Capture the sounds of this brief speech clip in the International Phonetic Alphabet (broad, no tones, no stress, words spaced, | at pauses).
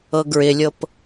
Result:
ɤɡɹɪlʲɤp